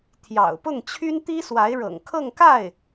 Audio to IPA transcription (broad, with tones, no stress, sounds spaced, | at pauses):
t̪ʰ j ɑ̰˨˩ ʊ̯ p ʊ˥˩ ŋ t͡ɕʰ y˥ n t̪ i˥ s w a˧˥ ɪ̯ ɻ ɤ̰˨˩ ŋ kʰ ɤ˥˧ ŋ k a˥˩ ɪ̯